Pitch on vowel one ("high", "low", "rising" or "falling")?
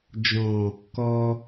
low